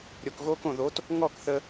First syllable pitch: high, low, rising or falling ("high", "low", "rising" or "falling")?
low